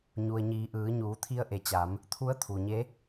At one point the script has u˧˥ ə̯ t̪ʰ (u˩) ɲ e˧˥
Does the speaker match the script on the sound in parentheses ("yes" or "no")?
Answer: yes